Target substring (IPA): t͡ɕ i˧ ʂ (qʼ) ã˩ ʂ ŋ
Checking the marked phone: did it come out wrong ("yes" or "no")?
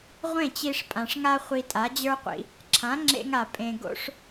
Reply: yes